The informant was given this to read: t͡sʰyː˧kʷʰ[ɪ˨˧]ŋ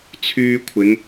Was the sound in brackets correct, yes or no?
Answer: yes